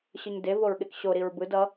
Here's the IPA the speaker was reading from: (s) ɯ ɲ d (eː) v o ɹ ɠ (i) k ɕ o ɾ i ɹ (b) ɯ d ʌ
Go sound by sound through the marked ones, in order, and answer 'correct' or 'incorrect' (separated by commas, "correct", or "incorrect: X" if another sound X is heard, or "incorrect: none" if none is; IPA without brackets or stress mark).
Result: incorrect: ɕ, incorrect: e, incorrect: e, correct